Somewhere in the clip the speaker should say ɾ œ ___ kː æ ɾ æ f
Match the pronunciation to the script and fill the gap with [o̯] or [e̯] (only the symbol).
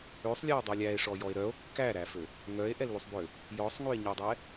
o̯